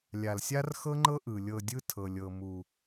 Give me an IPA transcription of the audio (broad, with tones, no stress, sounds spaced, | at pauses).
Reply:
lʲ a˨ l sʲ a˦ r x ɤ˦ ŋ͡ǃ ɤ˦ ʔ ɯ˨ lʲ ɤ˧ dʲ ɯ˦ tʰ ɤ˨ lʲ ɤ˨ m u˨